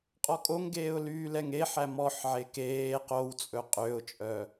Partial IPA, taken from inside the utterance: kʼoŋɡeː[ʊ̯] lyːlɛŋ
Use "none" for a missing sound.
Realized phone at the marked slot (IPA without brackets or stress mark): ʊ̯